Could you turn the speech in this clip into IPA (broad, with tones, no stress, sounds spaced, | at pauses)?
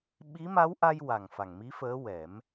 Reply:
ɓ i˧˥ m a˧˥ w ʔ a˧ j w a˨˩ ŋ f a˨˩ ŋ m i˧˥ f əː˧˥ w ɛ˨˩˦ m